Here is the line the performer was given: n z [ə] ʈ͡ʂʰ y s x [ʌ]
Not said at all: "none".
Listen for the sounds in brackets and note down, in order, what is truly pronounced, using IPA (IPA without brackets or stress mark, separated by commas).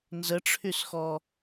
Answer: ə, ɔ